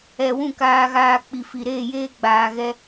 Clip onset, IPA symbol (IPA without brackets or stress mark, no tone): ɛ